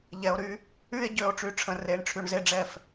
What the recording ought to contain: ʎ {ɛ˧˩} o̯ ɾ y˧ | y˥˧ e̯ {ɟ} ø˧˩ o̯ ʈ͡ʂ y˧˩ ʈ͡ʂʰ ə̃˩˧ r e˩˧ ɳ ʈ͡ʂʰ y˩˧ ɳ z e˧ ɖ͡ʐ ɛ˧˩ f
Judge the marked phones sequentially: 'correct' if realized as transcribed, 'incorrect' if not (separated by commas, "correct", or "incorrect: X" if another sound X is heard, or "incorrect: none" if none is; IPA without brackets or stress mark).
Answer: incorrect: ɛ˩˧, correct